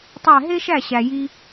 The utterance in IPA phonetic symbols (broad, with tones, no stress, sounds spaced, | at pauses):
tˤ æ˥˩ ɦ e˥ ʃ æ˥˩ ɕ æ˩ j i˧